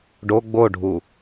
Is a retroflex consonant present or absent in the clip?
present